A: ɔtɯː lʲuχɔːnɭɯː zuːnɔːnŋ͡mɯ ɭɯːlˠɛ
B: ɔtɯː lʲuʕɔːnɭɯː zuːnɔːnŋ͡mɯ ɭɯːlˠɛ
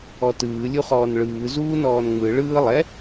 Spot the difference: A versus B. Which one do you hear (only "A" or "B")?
A